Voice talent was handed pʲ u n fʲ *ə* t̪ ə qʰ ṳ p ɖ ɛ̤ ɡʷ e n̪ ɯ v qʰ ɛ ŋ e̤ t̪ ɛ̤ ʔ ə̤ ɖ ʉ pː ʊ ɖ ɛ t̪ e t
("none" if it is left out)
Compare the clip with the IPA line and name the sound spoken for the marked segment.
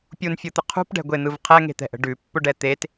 ɯ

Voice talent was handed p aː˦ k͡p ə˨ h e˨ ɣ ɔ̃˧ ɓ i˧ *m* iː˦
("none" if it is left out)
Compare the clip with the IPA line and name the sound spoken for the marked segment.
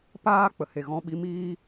m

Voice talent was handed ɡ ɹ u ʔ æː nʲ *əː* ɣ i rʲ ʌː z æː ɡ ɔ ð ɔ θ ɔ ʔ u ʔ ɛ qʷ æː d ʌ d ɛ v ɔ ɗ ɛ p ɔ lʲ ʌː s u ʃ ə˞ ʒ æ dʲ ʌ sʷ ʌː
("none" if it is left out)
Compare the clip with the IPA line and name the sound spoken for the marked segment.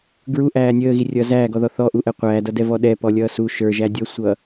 əː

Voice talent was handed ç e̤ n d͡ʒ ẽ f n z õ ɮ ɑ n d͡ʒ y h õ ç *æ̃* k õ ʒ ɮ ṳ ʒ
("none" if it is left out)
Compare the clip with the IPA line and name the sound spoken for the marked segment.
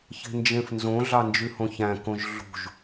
æ̃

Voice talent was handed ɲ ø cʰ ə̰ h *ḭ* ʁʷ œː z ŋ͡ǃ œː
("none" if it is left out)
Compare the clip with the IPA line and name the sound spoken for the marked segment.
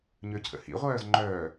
ḭ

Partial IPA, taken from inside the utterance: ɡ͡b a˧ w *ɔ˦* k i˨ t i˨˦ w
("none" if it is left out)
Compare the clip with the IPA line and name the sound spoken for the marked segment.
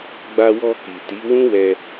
ɔ˧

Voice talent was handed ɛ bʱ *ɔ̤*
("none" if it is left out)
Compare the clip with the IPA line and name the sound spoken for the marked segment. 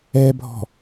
ɔ̤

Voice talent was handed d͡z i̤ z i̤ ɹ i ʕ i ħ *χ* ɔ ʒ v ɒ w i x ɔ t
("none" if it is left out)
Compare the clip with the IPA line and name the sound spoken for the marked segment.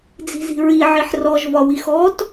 r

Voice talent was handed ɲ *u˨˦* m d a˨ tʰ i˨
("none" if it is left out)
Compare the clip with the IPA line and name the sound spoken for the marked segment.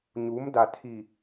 u˨˦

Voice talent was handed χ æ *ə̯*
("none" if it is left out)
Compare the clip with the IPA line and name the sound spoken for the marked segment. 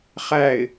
ɪ̯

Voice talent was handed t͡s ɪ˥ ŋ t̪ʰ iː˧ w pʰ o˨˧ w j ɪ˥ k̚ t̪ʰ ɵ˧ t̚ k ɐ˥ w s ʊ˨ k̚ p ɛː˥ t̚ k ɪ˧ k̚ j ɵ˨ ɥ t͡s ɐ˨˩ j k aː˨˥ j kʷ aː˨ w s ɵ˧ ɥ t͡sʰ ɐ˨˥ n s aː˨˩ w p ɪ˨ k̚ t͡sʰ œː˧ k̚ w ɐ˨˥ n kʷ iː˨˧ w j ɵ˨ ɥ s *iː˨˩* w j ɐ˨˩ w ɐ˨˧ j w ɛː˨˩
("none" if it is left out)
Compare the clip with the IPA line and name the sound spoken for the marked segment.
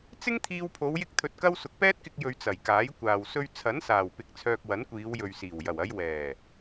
iː˨˩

